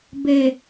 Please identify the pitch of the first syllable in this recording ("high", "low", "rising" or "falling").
low